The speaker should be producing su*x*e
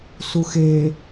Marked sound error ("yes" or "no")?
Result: no